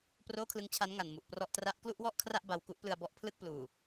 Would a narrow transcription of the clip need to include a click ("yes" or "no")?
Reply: no